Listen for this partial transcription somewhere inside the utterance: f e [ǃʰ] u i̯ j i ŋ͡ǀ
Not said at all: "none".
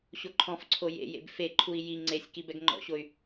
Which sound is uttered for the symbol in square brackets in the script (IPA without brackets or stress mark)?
ǃʰ